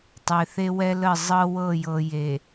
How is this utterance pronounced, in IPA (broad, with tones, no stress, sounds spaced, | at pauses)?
tˤ e˨ θ e˦ w ɛ˦ l ə˦˨ zˤ ɤ˦ w ɤ˦˨ j ɤ˨ j e˨